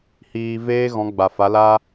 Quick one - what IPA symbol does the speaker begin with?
h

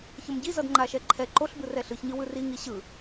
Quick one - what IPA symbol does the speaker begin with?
ç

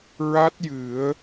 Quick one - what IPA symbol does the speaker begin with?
ɹ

